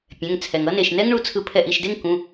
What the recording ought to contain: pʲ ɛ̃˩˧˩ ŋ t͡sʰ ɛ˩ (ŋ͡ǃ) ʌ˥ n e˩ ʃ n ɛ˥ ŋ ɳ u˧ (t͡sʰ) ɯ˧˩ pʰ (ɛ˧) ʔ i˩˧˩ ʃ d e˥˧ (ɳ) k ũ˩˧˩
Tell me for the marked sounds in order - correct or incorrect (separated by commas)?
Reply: incorrect, correct, incorrect, incorrect